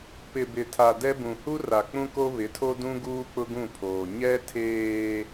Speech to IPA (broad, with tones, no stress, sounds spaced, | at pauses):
p ɪ˨ b ɪ˨ tʰ a˨ d ɛ˦ b ũ˨ h u˦ r a˨ k͡p ũ˦ k o˦ β ɪ˨˦ tʰ o˦ d ũ˦ ɡ uː˦ k͡p ʊ˦ ɡ ũ˦˨ pʰ oː˨ ɲ ɛ˦ tʰ eː˦